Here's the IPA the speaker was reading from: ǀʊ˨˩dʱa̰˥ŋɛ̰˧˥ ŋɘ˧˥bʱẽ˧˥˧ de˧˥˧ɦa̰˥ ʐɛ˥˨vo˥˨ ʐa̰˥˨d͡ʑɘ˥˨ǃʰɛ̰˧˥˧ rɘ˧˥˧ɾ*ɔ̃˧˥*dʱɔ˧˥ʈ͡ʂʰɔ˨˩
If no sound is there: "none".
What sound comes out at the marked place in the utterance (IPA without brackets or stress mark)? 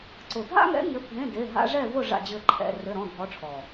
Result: ɔ̃˧˥˧